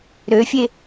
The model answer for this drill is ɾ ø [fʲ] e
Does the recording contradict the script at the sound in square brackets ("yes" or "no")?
no